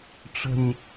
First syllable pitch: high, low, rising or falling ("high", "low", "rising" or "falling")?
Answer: low